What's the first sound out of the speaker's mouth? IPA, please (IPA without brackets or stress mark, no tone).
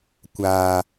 kʷ